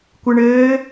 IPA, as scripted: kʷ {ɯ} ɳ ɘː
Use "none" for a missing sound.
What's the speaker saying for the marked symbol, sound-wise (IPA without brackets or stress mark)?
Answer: ɯ